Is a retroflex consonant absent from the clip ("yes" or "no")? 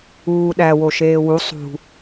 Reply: yes